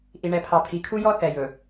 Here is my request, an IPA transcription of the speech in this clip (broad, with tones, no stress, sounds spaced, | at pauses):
ʔ i˨ ɳ ɛ˨ pʰ ɑ˨ pʰ i˨ kʰ u˦ j ɔ˦ θ ɛ˨ j ɵ˨